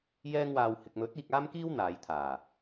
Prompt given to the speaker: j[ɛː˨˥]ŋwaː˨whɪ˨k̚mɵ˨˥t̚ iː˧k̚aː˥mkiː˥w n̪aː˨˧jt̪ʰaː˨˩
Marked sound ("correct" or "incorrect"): incorrect